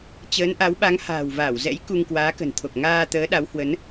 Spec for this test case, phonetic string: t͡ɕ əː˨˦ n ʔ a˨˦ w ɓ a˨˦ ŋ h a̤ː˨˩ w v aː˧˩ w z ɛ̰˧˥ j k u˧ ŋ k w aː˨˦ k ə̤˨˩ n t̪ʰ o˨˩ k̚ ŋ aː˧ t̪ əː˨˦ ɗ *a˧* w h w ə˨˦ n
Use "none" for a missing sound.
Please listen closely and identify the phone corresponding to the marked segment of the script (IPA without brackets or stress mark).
a˨˦